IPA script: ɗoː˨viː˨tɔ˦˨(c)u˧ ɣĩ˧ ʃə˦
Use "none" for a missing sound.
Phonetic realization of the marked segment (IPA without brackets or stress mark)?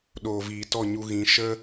ɲ